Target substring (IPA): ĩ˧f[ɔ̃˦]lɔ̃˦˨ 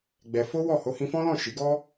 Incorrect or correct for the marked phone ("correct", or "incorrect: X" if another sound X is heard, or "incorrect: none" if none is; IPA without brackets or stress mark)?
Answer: correct